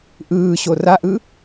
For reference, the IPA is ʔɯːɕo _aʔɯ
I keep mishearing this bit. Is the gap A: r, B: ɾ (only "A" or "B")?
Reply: A